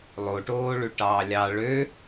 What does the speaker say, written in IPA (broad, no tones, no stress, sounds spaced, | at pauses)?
lˠ o ʈ oː ɭ ʉ ʈ ɑː lʲ ɑ ɭ ø